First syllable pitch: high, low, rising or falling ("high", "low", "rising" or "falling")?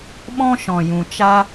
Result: high